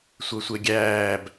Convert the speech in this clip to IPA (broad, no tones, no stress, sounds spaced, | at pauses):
sʷ œ sʷ e ɡʲ æː b